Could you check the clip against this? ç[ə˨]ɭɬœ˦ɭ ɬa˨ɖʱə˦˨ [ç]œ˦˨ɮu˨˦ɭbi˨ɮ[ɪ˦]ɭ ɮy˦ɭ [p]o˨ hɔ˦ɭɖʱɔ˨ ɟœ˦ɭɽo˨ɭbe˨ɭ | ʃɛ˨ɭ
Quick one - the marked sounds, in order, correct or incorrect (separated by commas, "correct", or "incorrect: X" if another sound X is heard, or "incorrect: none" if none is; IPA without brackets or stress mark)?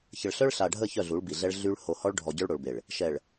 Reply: correct, correct, incorrect: ɛ˦, incorrect: h